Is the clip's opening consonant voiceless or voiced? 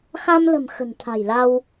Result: voiceless